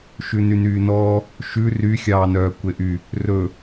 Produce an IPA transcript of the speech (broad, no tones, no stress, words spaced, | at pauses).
ʃʉnynyːnɔː | ʃʉ ryxʲɑːnœː kʷeʔy | rɵ